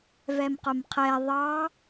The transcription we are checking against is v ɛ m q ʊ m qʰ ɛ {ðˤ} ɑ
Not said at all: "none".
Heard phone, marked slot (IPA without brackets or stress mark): ðˤ